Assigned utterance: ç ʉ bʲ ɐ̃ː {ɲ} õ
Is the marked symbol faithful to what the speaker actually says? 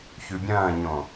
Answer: yes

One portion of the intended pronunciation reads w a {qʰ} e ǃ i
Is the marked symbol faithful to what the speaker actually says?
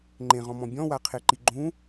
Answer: yes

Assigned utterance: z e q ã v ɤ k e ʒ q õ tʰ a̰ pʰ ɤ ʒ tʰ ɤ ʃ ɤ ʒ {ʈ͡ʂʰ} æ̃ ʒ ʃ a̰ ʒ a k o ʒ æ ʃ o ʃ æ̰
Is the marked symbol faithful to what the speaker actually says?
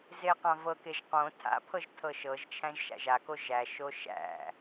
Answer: no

